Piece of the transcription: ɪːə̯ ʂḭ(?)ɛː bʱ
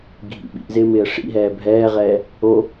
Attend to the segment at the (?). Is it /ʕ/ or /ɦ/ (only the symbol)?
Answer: ɦ